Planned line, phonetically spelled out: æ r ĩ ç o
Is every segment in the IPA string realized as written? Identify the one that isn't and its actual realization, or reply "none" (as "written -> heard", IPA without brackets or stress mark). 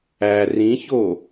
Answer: none